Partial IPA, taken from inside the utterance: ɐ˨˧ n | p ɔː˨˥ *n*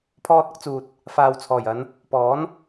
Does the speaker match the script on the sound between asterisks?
yes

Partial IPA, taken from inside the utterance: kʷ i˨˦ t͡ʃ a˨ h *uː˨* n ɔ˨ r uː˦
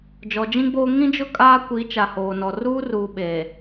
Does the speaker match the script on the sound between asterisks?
no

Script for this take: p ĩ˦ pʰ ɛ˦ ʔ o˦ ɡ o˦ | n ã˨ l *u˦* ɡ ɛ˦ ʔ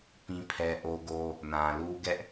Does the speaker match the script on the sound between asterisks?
yes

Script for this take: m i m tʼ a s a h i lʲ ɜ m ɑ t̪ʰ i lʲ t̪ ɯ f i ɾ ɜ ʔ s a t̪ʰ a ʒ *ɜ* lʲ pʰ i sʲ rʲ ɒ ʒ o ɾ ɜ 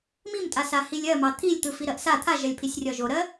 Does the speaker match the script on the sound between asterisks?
yes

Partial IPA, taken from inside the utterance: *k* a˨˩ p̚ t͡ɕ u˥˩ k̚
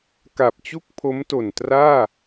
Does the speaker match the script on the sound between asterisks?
yes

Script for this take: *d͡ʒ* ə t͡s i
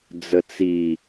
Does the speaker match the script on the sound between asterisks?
no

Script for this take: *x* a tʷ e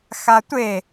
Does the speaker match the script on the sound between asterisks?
yes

